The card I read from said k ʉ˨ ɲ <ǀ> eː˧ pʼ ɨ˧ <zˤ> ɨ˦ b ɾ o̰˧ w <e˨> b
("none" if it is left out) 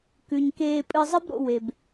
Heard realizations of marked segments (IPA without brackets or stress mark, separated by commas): k, zˤ, e˨